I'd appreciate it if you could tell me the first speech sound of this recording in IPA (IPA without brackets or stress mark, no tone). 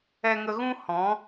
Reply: ɛ